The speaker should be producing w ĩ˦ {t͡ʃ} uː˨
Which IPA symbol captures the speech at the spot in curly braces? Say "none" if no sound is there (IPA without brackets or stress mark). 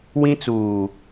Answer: t͡s